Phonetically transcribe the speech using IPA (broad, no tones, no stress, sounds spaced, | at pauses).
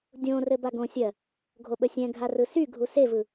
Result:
dʲ õ r ɘ b a ɡ õ sʲ ɜ | ɡʱ o ɓ ə sʲ ɛ̃ ɡʱ a r ɯ s y ɡʱ u s e v ɯ